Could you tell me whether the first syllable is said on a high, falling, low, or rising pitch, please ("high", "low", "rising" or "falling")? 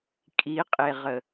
rising